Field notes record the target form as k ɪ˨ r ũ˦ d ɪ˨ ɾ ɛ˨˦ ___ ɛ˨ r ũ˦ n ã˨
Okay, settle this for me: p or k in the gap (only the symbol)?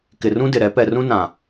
p